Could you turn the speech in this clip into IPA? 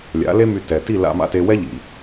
lʲa̰˩˥le˥my˧ tɛ˩ ti˥˩la̰˧ma̰˧te˧ wɛ˥ʎḭ˩

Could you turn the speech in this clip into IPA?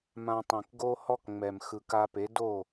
mã˧tˤĩ˩k ɡo˥ hɔ˥kŋ͡mɛ˩m xɯ˩ka˧pe˩˥ do˥˩

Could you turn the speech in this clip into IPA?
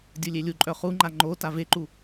dʲulʲelʲuǃʼœ χuŋ͡ǃa ŋ͡ǃo taveǃu

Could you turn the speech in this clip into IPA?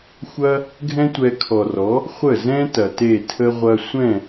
xʷɐ˦ | ɡʱɛ̃˦tʷɛ˧kʰɔ˨rɔ˨˦ | χʷə˦˨zɛ̃˦ tɐ˨te˦˨tʰə˦ ʁʷɐ˧sʷɛ̃˦˨

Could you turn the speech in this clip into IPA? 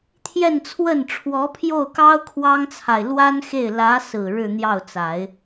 t̪ʰjɛ˥˧nt͡sʰwə˥˩n ʈ͡ʂʰwɔ˧˥pʰjo˥˩ʊ̯kɑ˥ʊ̯ kʰwɑ˥ŋt͡sʰa˨ɪ̯ lwa˥nxe˥˩ɪ̯ lä˧˥sɹ̩˨˩ ɻɻ̩˥˧n̪jɑ˥˩ʊ̯t͡sa˨˩˦ɪ̯

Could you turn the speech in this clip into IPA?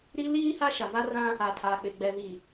ɾi˦ liː˦ ha˦ʃa˨va˦rã˦ | a˨tʰaː˨k͡pɪ˨ ɡ͡bɛ˨vi˨

